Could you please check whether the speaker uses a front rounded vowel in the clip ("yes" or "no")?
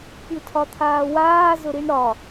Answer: no